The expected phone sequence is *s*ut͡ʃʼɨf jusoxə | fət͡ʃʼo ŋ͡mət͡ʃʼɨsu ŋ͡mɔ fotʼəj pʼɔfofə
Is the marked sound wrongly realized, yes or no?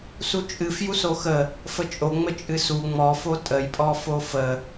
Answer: no